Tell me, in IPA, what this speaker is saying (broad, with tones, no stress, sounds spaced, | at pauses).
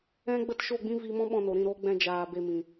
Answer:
ɛ̃˦ ɡ͡b ə˦ t ʃ o˦˨ ɡ͡b ĩ˦ v i˧ m ɔ̃˦ ɓ ɔ̃˧ n o˨ ɾ ĩ˦˨ ɾ oː˦ ɡ͡b ɛ̃˧ d͡ʒ aː˨ b e˨ m ĩ˨